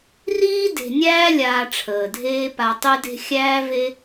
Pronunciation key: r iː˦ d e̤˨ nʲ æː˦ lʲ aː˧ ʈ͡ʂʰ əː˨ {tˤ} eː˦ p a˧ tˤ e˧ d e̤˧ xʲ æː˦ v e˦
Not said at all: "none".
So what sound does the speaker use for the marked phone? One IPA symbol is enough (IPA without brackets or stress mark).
dʱ